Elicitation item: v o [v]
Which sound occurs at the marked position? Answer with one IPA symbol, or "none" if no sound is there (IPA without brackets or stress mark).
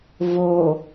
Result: none